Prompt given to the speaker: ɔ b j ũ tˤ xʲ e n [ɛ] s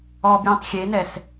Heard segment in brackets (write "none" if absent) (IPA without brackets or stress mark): ɛ